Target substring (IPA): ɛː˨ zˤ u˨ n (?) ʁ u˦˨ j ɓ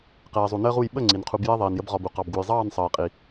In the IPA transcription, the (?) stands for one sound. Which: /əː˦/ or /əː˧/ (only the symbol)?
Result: əː˦